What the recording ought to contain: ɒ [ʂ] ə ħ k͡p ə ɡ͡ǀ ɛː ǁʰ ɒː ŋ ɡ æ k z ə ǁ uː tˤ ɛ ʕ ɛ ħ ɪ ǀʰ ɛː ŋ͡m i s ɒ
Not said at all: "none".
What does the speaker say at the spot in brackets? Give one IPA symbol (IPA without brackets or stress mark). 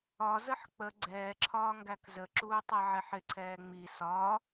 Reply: z